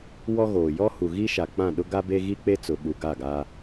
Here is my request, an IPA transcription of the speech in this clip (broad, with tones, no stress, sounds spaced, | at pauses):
w ɔ˦ ɣ oː˨ j ɔ˦ h u˨ ɣ i˦ ʃ a˨ k͡p ã˦˨ ɗ ʊ˦ ɡ a˦ b e˦ ɣ i˦ k͡p e˦ t͡s ʊ˨ ɓ u˨ ɡ a˦˨ ɡ a˦